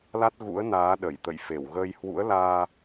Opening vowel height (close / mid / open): open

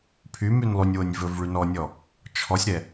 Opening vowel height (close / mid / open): close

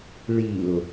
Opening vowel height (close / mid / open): close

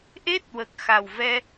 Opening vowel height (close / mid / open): mid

